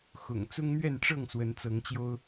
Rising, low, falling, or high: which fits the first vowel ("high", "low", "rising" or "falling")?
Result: low